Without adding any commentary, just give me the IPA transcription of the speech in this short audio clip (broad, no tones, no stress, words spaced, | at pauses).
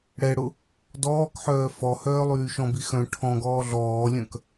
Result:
ɽɛɽʊ | dɔːkħœː fɔhœː lˠyːʃɔ̃bi xœ̃ ʈʰɔ̃ɡɔː ɮɔːlʲœ̃k